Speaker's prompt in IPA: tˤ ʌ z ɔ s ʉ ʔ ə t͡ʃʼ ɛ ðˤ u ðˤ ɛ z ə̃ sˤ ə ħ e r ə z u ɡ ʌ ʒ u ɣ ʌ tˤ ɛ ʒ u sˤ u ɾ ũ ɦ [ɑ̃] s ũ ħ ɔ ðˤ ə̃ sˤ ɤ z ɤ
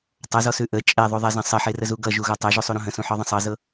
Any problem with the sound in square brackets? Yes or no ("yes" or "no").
yes